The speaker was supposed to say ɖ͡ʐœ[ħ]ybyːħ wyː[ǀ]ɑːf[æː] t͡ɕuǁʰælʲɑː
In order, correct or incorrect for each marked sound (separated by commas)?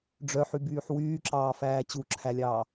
correct, incorrect, correct